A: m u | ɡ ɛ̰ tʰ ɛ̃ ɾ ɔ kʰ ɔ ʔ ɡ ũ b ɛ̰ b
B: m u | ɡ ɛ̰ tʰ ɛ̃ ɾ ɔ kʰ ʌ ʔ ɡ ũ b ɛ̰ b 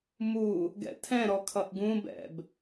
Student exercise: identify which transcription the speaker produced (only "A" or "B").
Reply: B